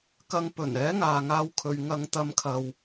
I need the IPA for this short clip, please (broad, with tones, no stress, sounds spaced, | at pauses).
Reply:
k ɐ˧ ŋ p ɵ˨˩ n ɛː˨˥ ŋ aː˨ ŋ aː˧ w kʰ ɵ˨ ɥ ŋ ɐ˧ ŋ t̪ ɐ˧ m kʰ ɐ˨ w